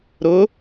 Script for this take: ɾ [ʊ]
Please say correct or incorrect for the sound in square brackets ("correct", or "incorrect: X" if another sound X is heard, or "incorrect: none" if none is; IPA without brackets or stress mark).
correct